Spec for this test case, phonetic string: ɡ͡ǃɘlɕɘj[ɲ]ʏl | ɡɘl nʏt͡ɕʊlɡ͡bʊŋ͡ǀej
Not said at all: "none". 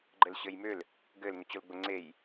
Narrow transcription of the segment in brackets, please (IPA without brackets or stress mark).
m